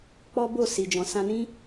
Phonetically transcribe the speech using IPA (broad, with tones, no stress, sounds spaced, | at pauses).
k͡p ɔ˦ b o˦˨ s i˨ d͡ʒ ɔ̃˨ s ã˧ n ĩ˦